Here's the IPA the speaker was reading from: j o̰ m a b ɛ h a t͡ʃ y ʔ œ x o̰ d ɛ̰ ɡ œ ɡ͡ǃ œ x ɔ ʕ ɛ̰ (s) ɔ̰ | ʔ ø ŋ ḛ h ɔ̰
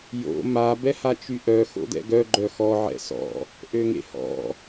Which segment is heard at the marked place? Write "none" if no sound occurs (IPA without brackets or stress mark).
s